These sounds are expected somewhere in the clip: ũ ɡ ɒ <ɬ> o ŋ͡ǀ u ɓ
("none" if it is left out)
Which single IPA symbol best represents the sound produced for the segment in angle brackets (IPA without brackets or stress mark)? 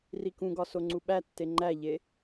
s